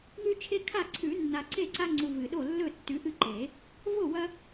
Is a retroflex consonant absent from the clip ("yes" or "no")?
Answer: yes